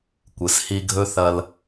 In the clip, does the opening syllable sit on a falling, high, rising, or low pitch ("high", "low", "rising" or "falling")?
low